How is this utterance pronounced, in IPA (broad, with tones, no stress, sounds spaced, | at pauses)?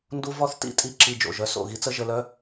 n d u˦ v ɔ˦ θ t ḭ˦˨ tʼ i˦ ǁ i˧ d͡ʒ o̰˨ ʒ œ˧ s o̰˦˨ ɣ i˦ t͡s ə˦ ʒ ə˧ l œ˦